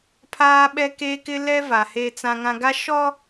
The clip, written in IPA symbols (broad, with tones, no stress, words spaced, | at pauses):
pʰaː˦ɓɛ˦keː˦kɪ˦ lɛ˦ va˨heː˦t͡sã˦ŋã˦ ɡa˦ʃɔ˦